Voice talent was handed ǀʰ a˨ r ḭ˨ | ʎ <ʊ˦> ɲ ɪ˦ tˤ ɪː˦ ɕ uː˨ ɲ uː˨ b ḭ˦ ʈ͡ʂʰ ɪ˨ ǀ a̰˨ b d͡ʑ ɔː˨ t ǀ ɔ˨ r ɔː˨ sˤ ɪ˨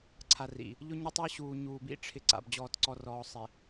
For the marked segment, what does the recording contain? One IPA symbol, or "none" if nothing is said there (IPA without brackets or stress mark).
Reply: ʊ˦